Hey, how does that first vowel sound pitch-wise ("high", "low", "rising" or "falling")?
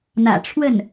low